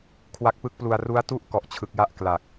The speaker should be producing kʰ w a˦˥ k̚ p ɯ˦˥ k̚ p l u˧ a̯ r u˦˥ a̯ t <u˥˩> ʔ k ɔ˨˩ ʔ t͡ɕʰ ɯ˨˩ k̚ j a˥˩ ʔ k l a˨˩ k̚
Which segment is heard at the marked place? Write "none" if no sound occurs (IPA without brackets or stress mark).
u˥˩